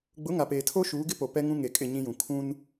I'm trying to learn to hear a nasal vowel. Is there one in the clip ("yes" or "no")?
yes